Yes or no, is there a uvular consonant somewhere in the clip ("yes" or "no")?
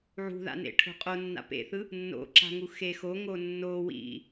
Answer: yes